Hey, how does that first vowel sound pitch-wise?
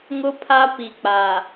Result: high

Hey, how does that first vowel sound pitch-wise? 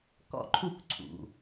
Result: falling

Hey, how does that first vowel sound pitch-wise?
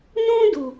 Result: high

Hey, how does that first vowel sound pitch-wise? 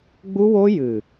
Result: high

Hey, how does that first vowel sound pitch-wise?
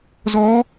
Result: rising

